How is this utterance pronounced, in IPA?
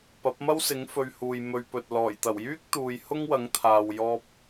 p ɐ˨˥ p̚ m ɐ˥ w s ɪ˨˥ ŋ f ɵ˧ ɥ h uː˨ j m ɵ˧ ɥ p ɵ˨ t̚ l ɔː˨˩ j t̪ ɐ˨˩ w j yː˥ k̚ t̪ uː˨ j h ʊ˥ ŋ w ɐ˨˥ ŋ t̪ʰ aː˨ w j ɔː˧ p̚

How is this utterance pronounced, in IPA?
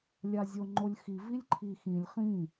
lʲ a zʲ o ŋ͡ǃ o lʲ x i v i lʲ ǃʰ i x ĩ lʲ χ ĩ

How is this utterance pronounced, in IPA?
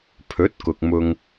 pʰ ɵ˨˥ t̚ k ʊ˨ k̚ m ʊ˧ ŋ

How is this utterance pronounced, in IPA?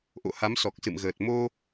ʔ o̰˧˨ h a˨˦ m s ɔ˨˩ k̚ s ɨ̰˧˨ m ɣ əː˨˩ t̚ m o˧

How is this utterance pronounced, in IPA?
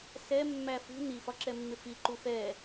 s ɛ mː æ f ṳ n i f ɒ ǁ ɛ mː ɪ f i ǃ u f ɛ

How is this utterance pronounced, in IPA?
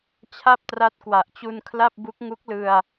t͡ɕʰ a˥˩ p̚ t r a˦˥ t̚ k w a˨˩ ʔ t͡ɕ u˧ n kʰ l a˥˩ p̚ b u˦˥ k̚ ŋ u˦˥ k̚ l ɯ˧ a̯

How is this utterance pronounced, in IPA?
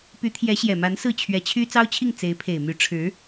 p y˧˥ t̪ʰ j ɛ˧˥ ɕ j ɛ˨˩ m a˧˥ n s ɹ̩˥˩ t͡ɕʰ ɥ ɛ˧˥ t͡ɕʰ y˥ t͡s ɑ˥ ʊ̯ t͡ɕʰ i˥˩ ŋ t͡s e˧˥ ɪ̯ pʰ e˨˩ ɪ̯ m y˧˥ ʈ͡ʂʰ ɻ̩˧˥

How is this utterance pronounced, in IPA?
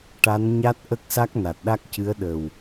ʈ a˧˥ n ɲ a˦˥ t̚ ʔ ə˦˥ k̚ s a˦˥ k̚ n a˨˩ t̚ ɗ a˦˥ k̚ c ɨ˧˥ ə̯ ɗ ə˨˩ w

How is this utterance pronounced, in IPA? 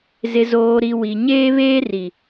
z ɪ˨ z oː˨ ɾ i˨ w i˨ ɲ eː˦ β eː˦ r i˨

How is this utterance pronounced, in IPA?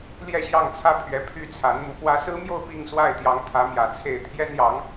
l j ɛ˥˧ ɕ j ɑ˥˩ ŋ t͡sʰ ä˥ pʰ ɥ ɛ˧˥ pʰ y˥˩ t͡sʰ a˧˥ n m u˧˥ p w ä˥ s ɹ̩˥ m j o˥˧ ʊ̯ p i˥˧ ŋ s w a˥˩ ɪ̯ t̪ j ɑ˧˥ ŋ t̪ʰ ä˧˥ m j ä˨˩ t͡sʰ e˥˩ ɪ̯ t̪ʰ j ɛ˥ n j ɑ˧˥ ŋ

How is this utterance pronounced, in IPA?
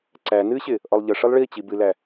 ǀ æ n ɨ ɕ ɪ | ʔ ɔ lˠ ʎ ə ʂ ɨ lˠ ɭ i t͡ɕ i b ɨ l æ

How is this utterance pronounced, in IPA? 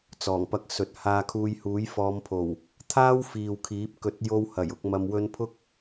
t͡s ɔː˨˩ ŋ p ɐ˧ k̚ s ɵ˨ t̚ h aː˧ kʰ uː˧ j h uː˨˥ j f ɔː˨˧ m pʰ o˨˩ w | t̪ʰ aː˥ w f iː˨ w kʰ iː˨˥ p̚ k ɵ˨˥ t̚ j o˧ w h ɐ˨˩ j ʊ˧ k̚ m ɐ˧ m w ɵ˧ n pʰ ʊ˥ k̚

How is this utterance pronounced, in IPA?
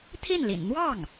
t̪ʰ i˥˩ n l ḭ˨˩ n n̪ w ɑ˥˩ ŋ

